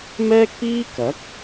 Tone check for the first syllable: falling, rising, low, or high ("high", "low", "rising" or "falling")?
high